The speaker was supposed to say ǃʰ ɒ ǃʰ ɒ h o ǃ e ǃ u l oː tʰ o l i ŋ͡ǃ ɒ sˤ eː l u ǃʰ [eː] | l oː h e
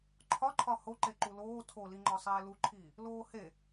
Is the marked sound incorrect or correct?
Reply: incorrect